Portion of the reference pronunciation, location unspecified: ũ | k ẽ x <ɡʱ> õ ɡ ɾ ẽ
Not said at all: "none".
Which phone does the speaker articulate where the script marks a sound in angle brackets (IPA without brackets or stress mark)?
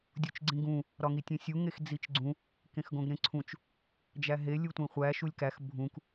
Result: ɡ